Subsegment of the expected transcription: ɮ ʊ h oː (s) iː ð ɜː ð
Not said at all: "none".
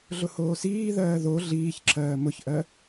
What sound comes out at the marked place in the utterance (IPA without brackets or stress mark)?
s